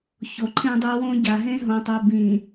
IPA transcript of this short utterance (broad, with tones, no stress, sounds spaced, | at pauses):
ç o˨ ǃʰ ẽ˦ dˤ ø˦ w õ˦ ɟ a˨ ɦ ẽ˦ ɦ õ˨ tˤ o˨ b ĩ˨